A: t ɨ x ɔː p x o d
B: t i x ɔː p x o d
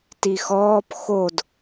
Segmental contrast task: B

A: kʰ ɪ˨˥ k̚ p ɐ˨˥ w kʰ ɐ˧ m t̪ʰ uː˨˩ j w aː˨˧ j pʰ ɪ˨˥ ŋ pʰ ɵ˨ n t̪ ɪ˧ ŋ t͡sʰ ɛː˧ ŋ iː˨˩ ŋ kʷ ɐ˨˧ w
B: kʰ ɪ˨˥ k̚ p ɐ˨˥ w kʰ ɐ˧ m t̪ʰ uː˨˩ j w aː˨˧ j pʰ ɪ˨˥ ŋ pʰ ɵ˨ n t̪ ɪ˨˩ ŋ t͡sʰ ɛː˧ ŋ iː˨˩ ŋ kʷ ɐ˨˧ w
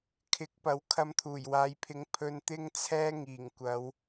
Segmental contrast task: A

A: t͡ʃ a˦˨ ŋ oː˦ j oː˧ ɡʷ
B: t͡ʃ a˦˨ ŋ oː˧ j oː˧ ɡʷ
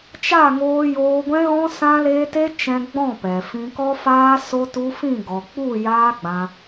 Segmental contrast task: B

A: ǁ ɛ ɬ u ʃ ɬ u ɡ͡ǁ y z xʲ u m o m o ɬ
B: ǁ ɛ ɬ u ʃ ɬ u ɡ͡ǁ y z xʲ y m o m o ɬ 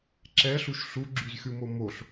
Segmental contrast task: A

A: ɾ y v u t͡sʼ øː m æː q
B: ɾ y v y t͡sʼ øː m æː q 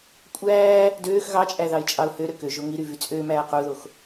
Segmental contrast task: B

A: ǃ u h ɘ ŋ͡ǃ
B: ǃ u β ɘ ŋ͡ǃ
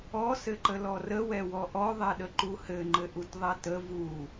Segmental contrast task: A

